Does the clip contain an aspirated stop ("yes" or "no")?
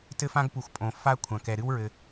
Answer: yes